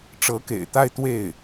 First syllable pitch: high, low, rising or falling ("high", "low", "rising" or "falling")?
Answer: rising